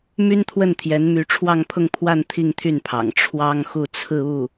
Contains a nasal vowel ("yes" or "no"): no